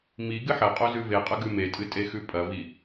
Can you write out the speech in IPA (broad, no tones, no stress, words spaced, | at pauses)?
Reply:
mi ɡɨħɐqʼo zʉveqʼɐ ɡʉmetʼɨ tʼexʉpʼɐvi